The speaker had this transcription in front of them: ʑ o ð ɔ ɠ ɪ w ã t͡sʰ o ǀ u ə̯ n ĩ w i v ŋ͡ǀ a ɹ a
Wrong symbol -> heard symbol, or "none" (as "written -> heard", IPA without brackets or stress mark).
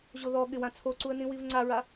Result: none